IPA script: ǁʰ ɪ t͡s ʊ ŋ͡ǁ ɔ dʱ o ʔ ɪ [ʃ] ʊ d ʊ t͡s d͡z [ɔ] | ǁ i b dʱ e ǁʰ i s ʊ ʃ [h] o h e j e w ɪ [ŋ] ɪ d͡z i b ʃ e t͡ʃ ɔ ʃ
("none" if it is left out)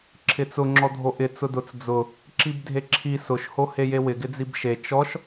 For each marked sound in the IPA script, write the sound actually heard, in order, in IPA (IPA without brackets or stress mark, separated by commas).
t͡s, ʊ, h, ɡ